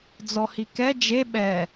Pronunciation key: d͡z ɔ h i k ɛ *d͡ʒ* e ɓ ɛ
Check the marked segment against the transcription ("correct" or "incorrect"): correct